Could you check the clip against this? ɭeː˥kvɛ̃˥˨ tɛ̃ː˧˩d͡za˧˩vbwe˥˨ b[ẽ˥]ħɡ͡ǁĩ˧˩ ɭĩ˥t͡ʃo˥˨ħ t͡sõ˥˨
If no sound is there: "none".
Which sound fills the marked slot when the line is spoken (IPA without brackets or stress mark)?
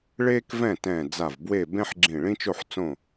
ẽ˥